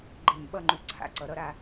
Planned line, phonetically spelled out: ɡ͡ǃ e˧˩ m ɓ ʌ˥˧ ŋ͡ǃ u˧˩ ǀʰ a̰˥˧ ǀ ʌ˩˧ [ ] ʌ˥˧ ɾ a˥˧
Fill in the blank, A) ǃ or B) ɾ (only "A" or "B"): B